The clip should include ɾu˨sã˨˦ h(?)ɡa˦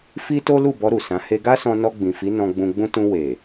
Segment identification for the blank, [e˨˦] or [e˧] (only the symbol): e˧